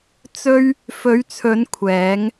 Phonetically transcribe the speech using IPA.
t͡sɵ˥ɥ | fɵ˨˧ɥt͡sʰɵ˨˧n kʷʰɛː˨˧ŋ

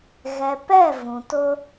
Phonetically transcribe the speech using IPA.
ɣɛ˨pɛ˦˨ vũ˨tʊ˦

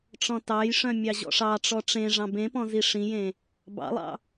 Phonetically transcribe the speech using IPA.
ʈ͡ʂɔ̃tɑjʂœ̃ mʲɑʑɔ̰ʂɑʈ͡ʂɔ ʈ͡ʂẽ ʐɑ̃bẽpɔ̃ ziʂĩjẽ | bɑ̰lˠɑ̰

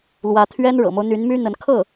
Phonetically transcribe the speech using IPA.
lwä˧˥t̪ʰɥɛ˥n ɻɤ̰˨˩mo˦ʊ̯n̪y˧˥n my˥n̪ə˧˥n kʰɤ˥˩

